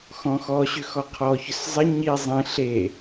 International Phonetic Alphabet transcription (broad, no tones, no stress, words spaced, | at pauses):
xɔ̃xɔ ɕʏxɔqʰɔ çʏszˤɪ ɲi zˤĩ ɬe